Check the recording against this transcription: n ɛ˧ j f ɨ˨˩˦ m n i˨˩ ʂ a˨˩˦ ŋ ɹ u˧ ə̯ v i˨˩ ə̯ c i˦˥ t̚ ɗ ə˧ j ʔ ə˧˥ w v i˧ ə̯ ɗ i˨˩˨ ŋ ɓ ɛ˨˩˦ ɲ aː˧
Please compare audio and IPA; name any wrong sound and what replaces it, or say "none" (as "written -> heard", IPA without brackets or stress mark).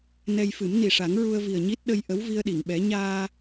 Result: c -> ɲ